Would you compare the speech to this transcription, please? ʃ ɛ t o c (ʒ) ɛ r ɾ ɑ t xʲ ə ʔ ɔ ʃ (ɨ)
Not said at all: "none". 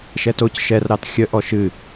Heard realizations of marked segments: ʃ, ɨ

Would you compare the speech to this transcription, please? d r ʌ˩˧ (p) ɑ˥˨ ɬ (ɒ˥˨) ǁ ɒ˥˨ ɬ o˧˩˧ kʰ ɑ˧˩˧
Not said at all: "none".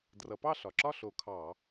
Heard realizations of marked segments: p, ɒ˩

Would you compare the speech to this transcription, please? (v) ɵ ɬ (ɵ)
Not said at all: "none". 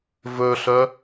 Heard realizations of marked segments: v, œ

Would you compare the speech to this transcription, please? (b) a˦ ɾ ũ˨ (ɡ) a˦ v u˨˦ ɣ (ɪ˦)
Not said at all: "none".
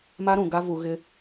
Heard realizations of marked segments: m, ɡ, ɪ˦

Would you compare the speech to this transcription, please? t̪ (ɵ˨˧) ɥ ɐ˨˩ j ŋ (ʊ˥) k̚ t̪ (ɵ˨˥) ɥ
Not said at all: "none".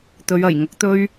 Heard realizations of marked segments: ɵ˨˧, ʊ˨˥, ɵ˥

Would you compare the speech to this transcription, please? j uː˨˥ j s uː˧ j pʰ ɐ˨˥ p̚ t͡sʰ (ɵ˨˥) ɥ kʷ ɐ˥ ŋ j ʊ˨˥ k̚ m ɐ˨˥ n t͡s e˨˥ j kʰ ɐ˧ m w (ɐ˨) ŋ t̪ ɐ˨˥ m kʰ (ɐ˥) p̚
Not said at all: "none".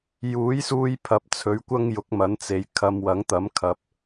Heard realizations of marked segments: ɵ˨˥, ɐ˨˥, ɐ˨

